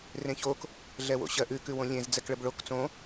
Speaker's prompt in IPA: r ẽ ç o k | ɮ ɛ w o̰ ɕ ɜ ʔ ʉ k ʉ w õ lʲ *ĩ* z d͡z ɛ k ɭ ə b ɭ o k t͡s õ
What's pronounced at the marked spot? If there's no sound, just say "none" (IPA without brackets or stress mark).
ẽ